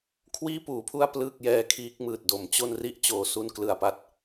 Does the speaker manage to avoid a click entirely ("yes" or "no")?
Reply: yes